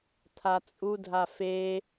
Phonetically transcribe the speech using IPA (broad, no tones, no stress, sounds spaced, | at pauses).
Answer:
t̪ʰ a t͡sʼ u dʱ a f e